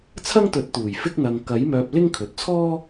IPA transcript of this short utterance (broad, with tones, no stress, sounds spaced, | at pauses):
t͡sʰ ɐ˥ ŋ t̪ ɵ˨˥ t̚ t̪ uː˨˩ j f ɪ˥ k̚ n̪ ɐ˧ ŋ k ɐ˨˥ j m œː˧ p̚ l ɪ˥ ŋ kʰ ɵ˨ t̚ t͡sʰ ɔː˥